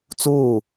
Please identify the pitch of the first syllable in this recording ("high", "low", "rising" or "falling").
falling